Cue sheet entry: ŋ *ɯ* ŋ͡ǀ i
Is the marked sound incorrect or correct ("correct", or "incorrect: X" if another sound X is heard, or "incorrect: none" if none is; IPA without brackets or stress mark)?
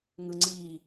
correct